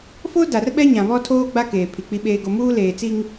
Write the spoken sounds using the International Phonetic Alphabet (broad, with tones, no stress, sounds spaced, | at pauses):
f o˦ d a˨ r ɓ ɛ˦ ɲ ã˨ β ɔ˦ tʰ oː˦ ɡ͡b a˦ k eː˨ pʰ i˨ k͡p i˦ ɓ eː˦ ɡ o˦ m uː˦ l eː˨ t͡s i˦ ŋ